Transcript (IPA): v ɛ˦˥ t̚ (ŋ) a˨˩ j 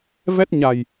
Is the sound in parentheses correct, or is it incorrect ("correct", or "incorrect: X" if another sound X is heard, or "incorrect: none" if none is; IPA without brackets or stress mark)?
incorrect: ɲ